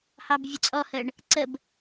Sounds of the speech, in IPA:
hɑbvʲʊt͡sʼɔhəːɳ | ǀəb

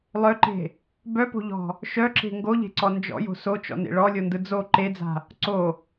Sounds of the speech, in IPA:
lˠœǃe̤ | bœpo̤ʎɔ̤ | ʃœǁe̤ ŋɡoʎe̤ǀɔ nd͡ʒɔ̰jo̤ sot͡ʃɔ̰nḛ ɭɔlʲondɯ d͡zo ǃed͡za̤ | ǀo

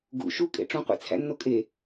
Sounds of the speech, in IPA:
ɡṵ ʃukʼḛ ʈ͡ʂũqʷḛt͡sʰæ̰nːo kʼe

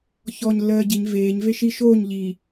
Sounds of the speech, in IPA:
çɔːɲlːɜːɟiɲ veːɲ veʃi ʃoːɲ ʎiː

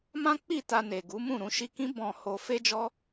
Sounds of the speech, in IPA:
mã˦k͡pi˦˨ ta˧ne˨ ɡu˨˦mũ˦˨ ɾũ˧ʃi˧kĩ˦ bɔ̃˧ ho˧ fe˦d͡ʒɔ˦

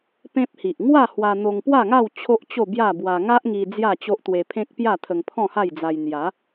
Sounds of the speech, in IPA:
pẽ˦p̚hi˨ʔ ŋwa˥˧hwa˧ n̪o˧ŋpwa˥˧ŋa˥˧w t͡ɕʰo˦ʔt͡ɕo˥˧bja˥˧bwa˧ ŋa˦ʔŋi˧ d͡zja˥˧t͡ɕo˦ʔ t̪we˧pʰẽ˦k̚pja˥˧ t̪ʰə˧ŋpʰɔ̃˥˧ha˥˧jd͡za˧j n̪ja˨˦

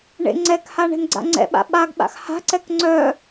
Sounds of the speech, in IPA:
ɳḛŋ͡ǀɛkha ɳɛ̤nɡ͡ǀa̰ŋ͡ǀɛ̰ɓa̰ ɓaɡɓa̰x ha̤ǀɛk ŋ͡ǀœ

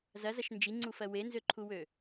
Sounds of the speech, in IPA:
zɐzɐʃ nd͡ʒiŋ͡ǀufɜ wenzøǃʰuwø

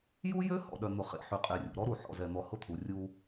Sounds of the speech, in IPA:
ju˦jø˦ hɔ̰˨ɗœ˨n̪ʊ˨ χḛ˨ ħy˨qʼe˨rʲṵ˨ ɾɔ˦ɾu˨ ħɔ̰˨zɛ˨n̪ɔ˨ hʊ˦t̪ʰu˨ rʲu˦

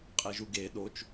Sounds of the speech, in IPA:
qʼeʒuɡe ɗot͡ʃ

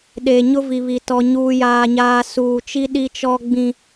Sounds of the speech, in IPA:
ɗeː˨ɲʊ˦vi˨βi˨ tɔ˦ɲuː˦jaː˦ɲaː˦ suː˨t͡ʃi˦ ɗi˦t͡ʃɔ˦ ɡ͡bĩ˨

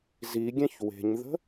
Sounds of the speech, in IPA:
ziɡʲɛ̃ç we̤ɲðə̤

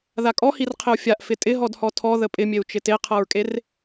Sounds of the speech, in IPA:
ðakʼɔhir qʰɪu̯fʲaʔ fɪtʼɪɦɔdhɔ tʰɔ ðəpʼɪmʲeu̯t͡ʃɪ teqʰɤɹkʼer

